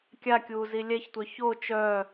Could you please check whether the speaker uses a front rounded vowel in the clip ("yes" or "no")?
yes